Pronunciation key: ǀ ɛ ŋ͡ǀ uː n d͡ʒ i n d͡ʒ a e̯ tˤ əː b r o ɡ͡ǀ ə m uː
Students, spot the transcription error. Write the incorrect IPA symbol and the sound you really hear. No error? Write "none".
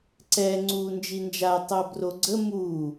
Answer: none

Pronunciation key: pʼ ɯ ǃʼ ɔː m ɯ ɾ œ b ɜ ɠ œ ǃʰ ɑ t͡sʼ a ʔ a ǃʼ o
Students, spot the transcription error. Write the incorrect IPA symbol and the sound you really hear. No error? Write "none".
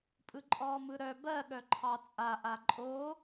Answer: none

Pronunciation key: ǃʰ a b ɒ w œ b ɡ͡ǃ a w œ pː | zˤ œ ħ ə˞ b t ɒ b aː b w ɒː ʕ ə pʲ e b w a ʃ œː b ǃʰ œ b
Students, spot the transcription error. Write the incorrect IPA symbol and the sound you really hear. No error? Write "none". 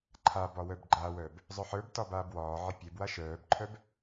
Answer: pː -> b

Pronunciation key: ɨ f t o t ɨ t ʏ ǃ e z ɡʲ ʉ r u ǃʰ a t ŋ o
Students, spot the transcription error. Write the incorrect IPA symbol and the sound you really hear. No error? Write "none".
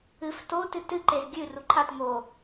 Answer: ʏ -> ɨ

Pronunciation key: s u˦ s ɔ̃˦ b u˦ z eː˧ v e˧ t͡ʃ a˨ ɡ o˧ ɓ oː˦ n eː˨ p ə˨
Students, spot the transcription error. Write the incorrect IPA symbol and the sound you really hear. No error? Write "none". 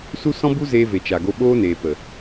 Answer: e˧ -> e˨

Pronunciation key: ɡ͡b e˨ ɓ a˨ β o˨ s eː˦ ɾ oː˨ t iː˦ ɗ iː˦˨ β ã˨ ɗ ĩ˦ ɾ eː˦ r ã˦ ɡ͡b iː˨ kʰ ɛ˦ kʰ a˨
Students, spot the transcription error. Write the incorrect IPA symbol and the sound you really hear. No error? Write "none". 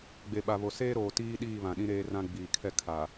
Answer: none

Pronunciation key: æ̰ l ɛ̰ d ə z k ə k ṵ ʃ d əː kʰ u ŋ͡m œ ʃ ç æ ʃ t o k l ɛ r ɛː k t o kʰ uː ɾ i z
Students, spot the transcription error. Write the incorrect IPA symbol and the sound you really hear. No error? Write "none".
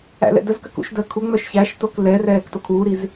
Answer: none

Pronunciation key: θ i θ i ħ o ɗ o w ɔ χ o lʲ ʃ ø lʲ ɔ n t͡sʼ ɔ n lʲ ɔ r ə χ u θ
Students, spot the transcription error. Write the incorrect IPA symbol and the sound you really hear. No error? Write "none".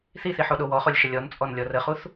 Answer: ø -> ə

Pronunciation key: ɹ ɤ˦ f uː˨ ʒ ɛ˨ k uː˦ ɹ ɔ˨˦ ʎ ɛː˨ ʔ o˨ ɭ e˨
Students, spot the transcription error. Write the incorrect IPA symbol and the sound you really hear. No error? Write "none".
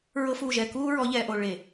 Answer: none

